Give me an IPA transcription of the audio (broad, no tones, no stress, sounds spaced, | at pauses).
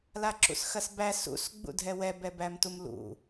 l a ǁ ṵ s x ɐ s b æ s ṵ s ɡ͡b ṵ dʱ ɛ w ɛ b ɛ b æ m t u m l ṵ